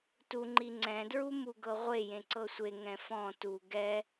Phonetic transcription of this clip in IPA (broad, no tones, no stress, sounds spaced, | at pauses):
t u ŋ͡ǃ i ŋ͡ǀ ɛ̃ d ɹ u m u ɡ ɤ ʁʷ e j ẽ ǀ ɤ sʷ e ŋ ɛ̃ f ɔ̃ t u ɡ ɛ